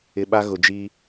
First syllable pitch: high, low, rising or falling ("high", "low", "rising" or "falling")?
low